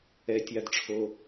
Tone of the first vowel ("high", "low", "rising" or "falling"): low